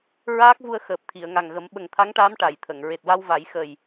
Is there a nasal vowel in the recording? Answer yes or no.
no